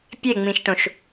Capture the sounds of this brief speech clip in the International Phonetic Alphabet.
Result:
pʲ e ŋ͡m ĩ ʃ t õ ʃ

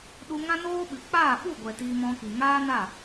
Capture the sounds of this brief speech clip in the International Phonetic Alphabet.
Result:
ɗ u˧ ŋ ã˦ n oː˦ ɓ ɨ˨ k͡p aː˦˨ ɓ u˦˨ ɡʷ ɛ˨ t iː˧ m ɔ̃˧ k i˨ ŋ aː˦ n a˦˨

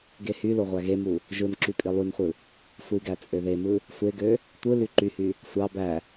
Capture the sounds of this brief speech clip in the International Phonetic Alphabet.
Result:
ɡ e h y l o ʁʷ æ ɣ e m u | ʒ ɯ n ǁ y pʼ i lˠ y n χʷ ɯ | sʷ i ɡ æ t͡sʼ ø ð e m ɯ | sʷ e ɡ ø | tʷ ɯ l y ǃ y h y | sʷ ɑ b æ

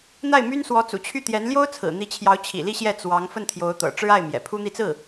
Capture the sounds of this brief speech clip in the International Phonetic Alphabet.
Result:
n̪ a˥˩ ɪ̯ m y˥ n s w ɔ˧˥ t͡s ṵ˨˩ t͡ɕʰ y˥˩ t̪ j ɛ˧˥ n l j o˥ ʊ̯ t͡sʰ ɹ̩˨˩ n̪ i˧˥ t͡ɕʰ j ɑ˧˥ ʊ̯ t͡ɕʰ ḭ˨˩ l i˥˧ ɕ j ɛ˥˩ t͡s w ɑ˧˥ ŋ f ə˥˩ n t̪ʰ j o˧˥ ʊ̯ t̪ ɤ̰˨˩ ʈ͡ʂ ɻ̩˥ a˥˩ ɪ̯ m j ɛ̰˨˩ pʰ u˥ n̪ i˥˧ t͡s ɹ̩˥˩

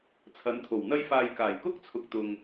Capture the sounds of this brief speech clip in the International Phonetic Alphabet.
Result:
t͡sʰ ɐ˨˥ n t̪ʰ o˨˩ w n̪ ɐ˥ j f aː˧ j k aː˨˩ j k ʊ˥ k̚ t͡sʰ ʊ˨ k̚ t̪ ʊ˨ ŋ

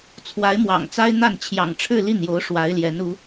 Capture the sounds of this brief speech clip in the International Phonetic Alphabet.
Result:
t͡sʰ w a˧˥ ɪ̯ m w ɑ̰˨˩ ŋ t͡s a˥ ɪ̯ n̪ a˥˩ n t͡ɕʰ j ɑ̰˨˩ ŋ ʈ͡ʂʰ ɻ̩˥˧ l i˥˩ n j o˧˥ ʊ̯ ʂ w a˧˥ ɪ̯ l j ɛ˧˥ n u˧˥

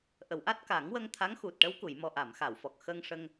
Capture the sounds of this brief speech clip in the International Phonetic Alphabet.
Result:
ʔ ə˨˩˨ w ʔ a˦˥ t̚ k aː˨˩˦ ŋ w ə˧ ŋ t̪ʰ a˧˥ ŋ x u˨˩ t̚ ʈ ə˧˥ w k u˨˩˨ j m ɔ˨˩ ʔ a˨˩˨ m x a˨˩˨ w f ɔ˨˩ k̚ x ə˧ ŋ ʂ ə˧ ŋ

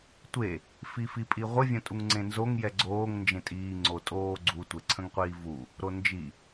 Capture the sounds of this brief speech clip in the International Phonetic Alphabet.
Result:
tʷ e | f i f i pʼ i ʁʷ ə vʲ ə̃ tʼ u ŋ ŋ͡ǀ ẽ n z o ŋ j ɛ ɡ͡ǀ oː ŋ n d͡ʒ ẽ tʼ iː ŋ͡ǀ o tʼ oː ɡ͡ǀ u tʷ e ǀʰ ə̃ ŋ qʷ iː v u | ɾ o n d͡ʒ i

